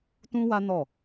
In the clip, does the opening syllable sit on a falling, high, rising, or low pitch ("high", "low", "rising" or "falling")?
high